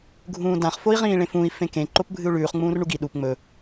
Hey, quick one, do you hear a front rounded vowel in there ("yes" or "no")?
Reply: no